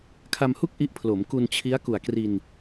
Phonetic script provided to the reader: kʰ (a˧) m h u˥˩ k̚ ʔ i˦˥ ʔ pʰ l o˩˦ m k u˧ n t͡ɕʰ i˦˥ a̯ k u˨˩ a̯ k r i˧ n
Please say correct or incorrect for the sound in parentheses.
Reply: correct